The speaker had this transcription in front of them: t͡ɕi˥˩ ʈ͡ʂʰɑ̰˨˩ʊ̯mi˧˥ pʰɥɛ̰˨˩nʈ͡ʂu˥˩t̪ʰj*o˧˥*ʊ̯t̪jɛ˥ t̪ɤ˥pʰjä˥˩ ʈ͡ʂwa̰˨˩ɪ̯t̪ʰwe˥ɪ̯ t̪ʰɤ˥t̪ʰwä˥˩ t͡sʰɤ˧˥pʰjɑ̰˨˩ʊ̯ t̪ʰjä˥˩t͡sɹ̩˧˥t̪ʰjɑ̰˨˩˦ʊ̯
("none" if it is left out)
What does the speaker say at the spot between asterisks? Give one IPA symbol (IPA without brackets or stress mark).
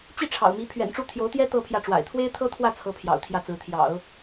o˧˥